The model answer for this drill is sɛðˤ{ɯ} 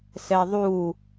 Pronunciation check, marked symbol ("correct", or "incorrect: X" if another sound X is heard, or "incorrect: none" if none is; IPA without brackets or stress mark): incorrect: u